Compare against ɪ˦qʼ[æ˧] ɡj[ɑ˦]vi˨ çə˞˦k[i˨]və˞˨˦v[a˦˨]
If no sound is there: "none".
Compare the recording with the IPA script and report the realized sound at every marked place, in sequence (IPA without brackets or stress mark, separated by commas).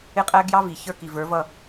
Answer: æ˦, ɑ˦, i˨, ʌ˦˨